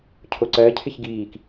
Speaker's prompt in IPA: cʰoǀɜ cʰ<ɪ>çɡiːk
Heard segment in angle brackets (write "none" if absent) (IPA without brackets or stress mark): ɪ